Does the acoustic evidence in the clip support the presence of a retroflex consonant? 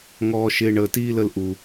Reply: yes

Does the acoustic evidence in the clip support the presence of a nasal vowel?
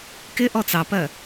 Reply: no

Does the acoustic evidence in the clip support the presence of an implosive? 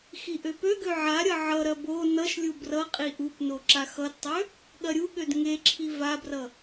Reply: yes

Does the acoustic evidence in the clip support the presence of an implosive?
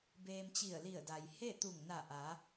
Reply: no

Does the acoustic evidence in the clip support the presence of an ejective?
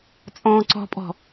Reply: yes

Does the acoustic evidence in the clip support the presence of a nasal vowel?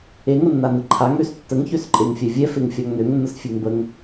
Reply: no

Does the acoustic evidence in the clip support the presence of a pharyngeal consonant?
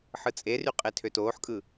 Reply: yes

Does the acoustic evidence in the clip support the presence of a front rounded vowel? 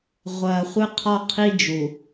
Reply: no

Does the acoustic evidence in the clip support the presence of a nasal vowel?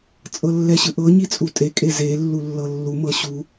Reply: no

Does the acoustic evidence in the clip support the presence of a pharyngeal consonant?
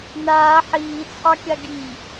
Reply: yes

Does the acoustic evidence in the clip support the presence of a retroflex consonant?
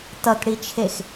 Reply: yes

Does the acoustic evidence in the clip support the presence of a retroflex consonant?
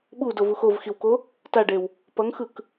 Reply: yes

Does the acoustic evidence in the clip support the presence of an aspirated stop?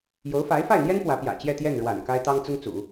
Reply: no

